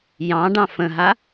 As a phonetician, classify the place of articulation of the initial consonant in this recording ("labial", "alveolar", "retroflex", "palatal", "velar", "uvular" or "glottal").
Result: palatal